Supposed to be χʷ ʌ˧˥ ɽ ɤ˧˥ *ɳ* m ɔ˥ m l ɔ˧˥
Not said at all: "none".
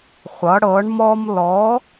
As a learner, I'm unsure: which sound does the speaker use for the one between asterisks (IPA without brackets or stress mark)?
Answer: ɳ